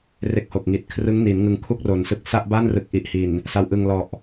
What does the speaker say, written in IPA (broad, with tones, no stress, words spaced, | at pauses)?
re˦˥k̚ho˨˩k̚ŋi˨˩t̚ kʰrɯ˦˥ŋni˩˦nŋɯ˧ŋ kʰu˥˩k̚ro˩˦nsɯ˨˩k̚ sa˥˩ʔba˥˩nrɯ˨˩k̚ ʔi˨˩ʔhi˨˩n | sa˧wʔɯ˧ŋ lɔ˨˩ʔ